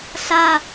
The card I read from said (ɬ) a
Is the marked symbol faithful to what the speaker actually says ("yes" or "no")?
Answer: yes